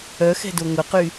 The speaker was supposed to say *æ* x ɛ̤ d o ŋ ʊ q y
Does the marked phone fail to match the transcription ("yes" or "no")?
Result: yes